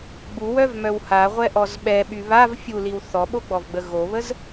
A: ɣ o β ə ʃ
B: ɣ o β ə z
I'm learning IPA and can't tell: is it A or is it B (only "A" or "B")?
B